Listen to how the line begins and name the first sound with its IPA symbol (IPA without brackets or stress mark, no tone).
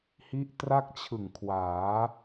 h